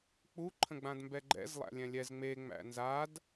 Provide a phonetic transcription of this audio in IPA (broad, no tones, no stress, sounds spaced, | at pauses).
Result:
k͡p u ǃʰ ə̃ ɡ͡b ã d m b ɛ ɡ͡ǃ ɛ̰ z lˠ æ̰ lʲ ɛ̃ lʲ ɛ z ŋ͡m e ŋ͡m æ̰ n z a d